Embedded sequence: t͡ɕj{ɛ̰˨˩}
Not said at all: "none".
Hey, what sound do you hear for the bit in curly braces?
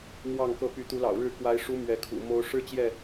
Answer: ɛ˥˨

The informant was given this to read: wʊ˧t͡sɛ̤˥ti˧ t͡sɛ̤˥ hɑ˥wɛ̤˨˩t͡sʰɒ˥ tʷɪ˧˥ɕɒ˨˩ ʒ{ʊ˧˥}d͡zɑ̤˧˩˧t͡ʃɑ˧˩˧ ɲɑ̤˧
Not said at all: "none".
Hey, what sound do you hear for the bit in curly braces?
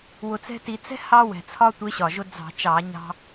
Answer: ʊ˧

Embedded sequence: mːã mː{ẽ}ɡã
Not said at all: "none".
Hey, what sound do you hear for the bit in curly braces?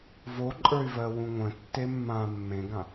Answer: ẽ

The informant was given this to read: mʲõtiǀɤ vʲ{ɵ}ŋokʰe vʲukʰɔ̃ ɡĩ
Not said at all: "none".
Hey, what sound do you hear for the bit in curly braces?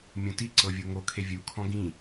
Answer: o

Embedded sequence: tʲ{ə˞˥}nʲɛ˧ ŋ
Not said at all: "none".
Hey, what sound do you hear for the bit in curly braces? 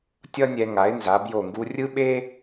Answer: ʌ˥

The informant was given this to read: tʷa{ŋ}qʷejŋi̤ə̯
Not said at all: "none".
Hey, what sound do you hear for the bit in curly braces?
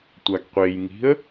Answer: ɡ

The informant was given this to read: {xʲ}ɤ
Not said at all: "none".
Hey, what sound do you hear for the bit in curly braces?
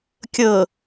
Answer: kʲ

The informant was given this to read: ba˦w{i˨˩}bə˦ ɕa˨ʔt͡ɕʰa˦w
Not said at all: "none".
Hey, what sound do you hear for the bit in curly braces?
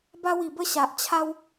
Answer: i˨˩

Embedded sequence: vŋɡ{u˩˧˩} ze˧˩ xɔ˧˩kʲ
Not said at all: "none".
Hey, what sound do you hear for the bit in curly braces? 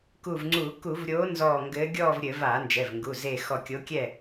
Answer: u˩˧˩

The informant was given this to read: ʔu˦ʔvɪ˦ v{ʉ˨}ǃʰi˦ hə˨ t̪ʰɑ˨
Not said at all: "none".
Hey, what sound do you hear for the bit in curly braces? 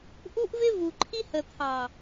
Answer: u˨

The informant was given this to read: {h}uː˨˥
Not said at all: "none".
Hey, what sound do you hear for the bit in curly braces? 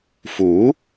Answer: f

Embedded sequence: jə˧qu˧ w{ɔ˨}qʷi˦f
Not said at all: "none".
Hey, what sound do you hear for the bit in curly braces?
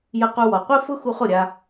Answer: ɔ˨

